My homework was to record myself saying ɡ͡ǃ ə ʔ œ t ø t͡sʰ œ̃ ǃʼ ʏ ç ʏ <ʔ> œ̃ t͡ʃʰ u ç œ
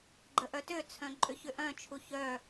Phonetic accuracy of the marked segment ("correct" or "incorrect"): correct